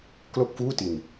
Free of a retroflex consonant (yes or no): yes